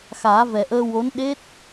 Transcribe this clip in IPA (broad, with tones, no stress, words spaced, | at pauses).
xaː˨˩˦vɛ˨˩ʔəː˧wo˧˥n ɗe˦˥t̚